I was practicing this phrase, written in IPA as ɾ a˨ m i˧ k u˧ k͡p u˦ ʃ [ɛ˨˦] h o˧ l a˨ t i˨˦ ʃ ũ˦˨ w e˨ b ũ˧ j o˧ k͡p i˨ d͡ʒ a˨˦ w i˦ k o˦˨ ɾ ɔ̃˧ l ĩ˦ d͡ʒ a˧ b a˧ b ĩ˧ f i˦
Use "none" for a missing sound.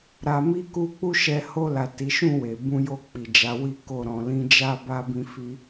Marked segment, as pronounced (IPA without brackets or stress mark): ɛ˧